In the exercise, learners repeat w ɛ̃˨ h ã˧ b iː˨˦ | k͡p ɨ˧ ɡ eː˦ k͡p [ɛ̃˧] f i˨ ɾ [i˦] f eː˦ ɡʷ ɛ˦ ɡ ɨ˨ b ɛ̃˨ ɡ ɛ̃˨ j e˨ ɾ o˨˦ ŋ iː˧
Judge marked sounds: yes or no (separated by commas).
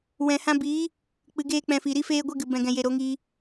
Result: yes, yes